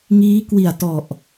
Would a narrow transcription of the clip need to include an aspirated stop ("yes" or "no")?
no